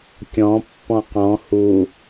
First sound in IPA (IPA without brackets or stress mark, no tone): kʲ